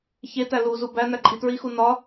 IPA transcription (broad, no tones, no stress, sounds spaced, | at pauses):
ç e t æ l u z u b æ n æ ǃʼ i t ɹ i x u n ɒ